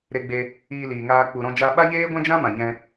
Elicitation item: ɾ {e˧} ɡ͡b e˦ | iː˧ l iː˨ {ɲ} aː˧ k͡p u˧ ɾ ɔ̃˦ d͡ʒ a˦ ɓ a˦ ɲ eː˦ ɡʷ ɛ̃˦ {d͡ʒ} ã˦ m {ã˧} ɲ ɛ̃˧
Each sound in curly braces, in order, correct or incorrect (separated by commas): incorrect, incorrect, correct, incorrect